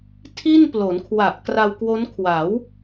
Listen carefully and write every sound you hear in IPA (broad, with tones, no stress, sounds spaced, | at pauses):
tʰ i˥˩ n p l o˩˦ n kʰ w a˨˩ ʔ k r a˧ w k w o˦˥ n kʰ w a˩˦ w